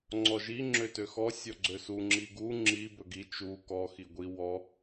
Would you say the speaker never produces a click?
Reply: no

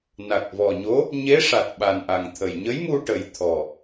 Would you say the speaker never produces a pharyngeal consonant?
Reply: yes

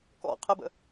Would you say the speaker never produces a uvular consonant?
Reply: no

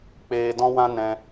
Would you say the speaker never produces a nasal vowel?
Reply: no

